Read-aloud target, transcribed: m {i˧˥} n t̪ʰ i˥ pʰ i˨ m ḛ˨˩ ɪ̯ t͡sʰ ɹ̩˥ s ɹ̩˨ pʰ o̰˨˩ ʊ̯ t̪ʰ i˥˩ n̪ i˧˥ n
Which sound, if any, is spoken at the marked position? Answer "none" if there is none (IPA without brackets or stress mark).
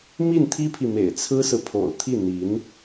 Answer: i˥˩